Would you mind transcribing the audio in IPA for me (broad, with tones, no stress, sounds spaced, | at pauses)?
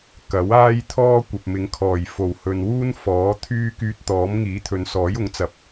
k ɐ˨˥ w aː˥ j t̪ʰ ɔː˥ kʷ ɐ˨ p̚ m ɪ˨˧ ŋ kʰ ɔː˨˩ j f o˨˩ w h ɵ˨ n w uː˥ n f ɔː˨˥ t̪ʰ yː˥ k yː˧ t̚ t̪ ɔː˨˥ m ŋ iː˨˥ t̪ʰ ɵ˨ n s ɔː˨˥ j ʊ˨˥ ŋ t͡s ɐ˨˥ p̚